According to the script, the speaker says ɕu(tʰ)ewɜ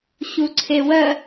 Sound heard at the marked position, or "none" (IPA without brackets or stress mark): ǀʰ